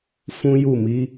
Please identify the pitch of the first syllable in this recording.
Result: high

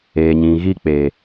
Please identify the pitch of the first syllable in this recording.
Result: low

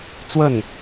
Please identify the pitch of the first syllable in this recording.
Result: falling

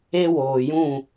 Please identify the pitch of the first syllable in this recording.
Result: high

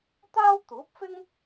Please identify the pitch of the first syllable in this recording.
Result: high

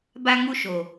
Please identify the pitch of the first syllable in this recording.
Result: high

